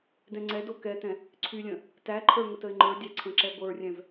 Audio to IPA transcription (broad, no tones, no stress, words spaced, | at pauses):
dɛ̃ŋ͡ǀɛdo kɛtɛ̃ | ǀʰylʲə̃ | tæǃʰə˞ ŋətəɪ̯ŋ͡ǃə˞dʲæ ǀʰə̃ǁɛɡʷə˞rʲɛ̃v